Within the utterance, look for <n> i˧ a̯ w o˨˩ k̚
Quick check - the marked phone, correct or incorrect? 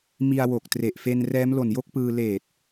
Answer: incorrect